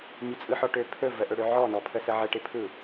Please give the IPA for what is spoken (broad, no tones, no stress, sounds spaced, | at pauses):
mʲ ə t͡sʼ ɯ ħ ɔ ʈ ø pʰ ɵ v ə ʔ ɵ ɽ ø ʕ ɔ n ɔ pʰ ə s ə ʕ ə ʈ ɪ pʰ ɯ